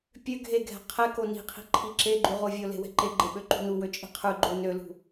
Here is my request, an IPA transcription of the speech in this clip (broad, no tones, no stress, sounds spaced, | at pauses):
pʲ ø ɡʱ e ɡʱ ɛ̤ qʰ ɛ k o n i̤ qʰ i̤ ǃʰ i ǁ e ɡ͡ǃ y ʁ o vʲ o l e̤ w ɛ̤ ǃ e ɡ͡ǃ e ɓ ø ǃ ṳ n u w ø t͡ʃʼ i̤ qʰ ʉ ɡ͡ǃ o n ø l ṳ